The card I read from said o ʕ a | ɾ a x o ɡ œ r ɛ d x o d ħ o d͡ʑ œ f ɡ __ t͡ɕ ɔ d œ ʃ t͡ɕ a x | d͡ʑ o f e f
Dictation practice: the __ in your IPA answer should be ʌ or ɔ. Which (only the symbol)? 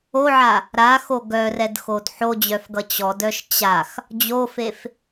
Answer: ʌ